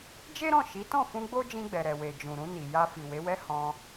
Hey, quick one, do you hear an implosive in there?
no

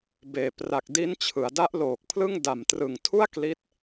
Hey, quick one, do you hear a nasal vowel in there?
no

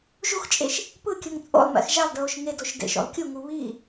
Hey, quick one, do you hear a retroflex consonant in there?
no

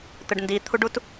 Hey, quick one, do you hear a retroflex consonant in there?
yes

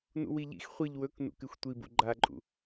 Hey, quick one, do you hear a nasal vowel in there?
no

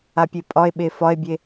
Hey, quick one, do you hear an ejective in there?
yes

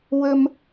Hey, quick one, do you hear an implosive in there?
no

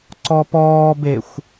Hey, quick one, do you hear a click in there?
yes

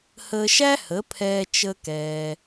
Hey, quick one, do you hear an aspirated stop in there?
yes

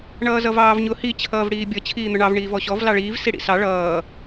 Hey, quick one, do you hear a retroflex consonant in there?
yes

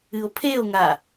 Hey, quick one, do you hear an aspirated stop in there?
yes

